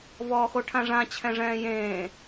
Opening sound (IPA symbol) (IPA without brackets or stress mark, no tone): v